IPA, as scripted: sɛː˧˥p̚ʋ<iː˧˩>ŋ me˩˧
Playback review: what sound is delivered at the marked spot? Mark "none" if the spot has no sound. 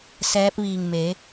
iː˧˩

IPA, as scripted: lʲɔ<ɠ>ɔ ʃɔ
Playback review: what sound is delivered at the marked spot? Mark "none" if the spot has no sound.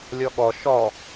ɠ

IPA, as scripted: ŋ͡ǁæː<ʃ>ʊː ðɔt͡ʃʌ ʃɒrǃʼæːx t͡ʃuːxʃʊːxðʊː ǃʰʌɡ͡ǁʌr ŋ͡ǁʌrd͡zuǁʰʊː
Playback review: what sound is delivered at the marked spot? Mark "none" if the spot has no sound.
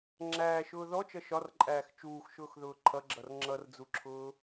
ʃ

